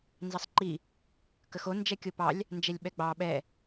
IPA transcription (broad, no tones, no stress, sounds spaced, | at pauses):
n z ɑ sˤ ǃ i | k ə x o n d͡ʒ ɛ kʲ o p ɑ lʲ | n d͡ʒ ɛ lʲ ɓ ɛ ɡ͡b ɑ ɓ ɛ